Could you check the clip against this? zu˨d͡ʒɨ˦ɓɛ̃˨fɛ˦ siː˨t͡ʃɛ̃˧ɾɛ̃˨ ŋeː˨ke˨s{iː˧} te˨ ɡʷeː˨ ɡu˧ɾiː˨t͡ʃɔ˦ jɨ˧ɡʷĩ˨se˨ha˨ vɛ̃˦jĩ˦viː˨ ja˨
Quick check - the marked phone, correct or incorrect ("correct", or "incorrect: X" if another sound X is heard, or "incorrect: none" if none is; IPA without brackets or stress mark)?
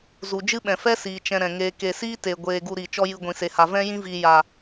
incorrect: iː˦